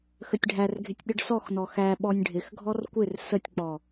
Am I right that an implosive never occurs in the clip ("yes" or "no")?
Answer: no